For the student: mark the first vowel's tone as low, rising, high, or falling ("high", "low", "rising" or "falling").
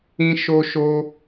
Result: high